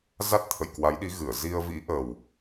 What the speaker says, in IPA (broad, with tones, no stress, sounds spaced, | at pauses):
z a˦˥ t̚ t̪ʰ ə̰˧˨ j k w a˨˦ j ɗ i˨˦ ɣ ɨ˧˩ ə̯ z i˧ ə̯ v ḭ˧˥ ʔ ə˨˩ w